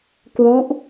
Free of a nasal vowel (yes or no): yes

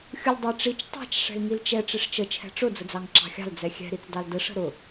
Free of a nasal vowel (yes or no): yes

